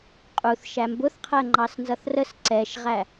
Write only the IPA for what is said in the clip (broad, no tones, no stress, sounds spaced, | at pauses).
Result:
qʼ u θ ʃ æ m b ʊ θ qʰ ɜ ŋ͡ǃ ɑ s n z ʌ θ r ə s ǀ ɛ ʃ ʁ æ